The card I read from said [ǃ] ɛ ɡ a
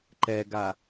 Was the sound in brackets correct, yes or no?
yes